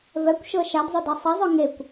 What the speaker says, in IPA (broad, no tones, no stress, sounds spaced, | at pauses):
v ɛ kʷ ʃ ɤ ʃ a d zˤ ɵ d ɤ sˤ ə zˤ ɵ ŋ e kʷ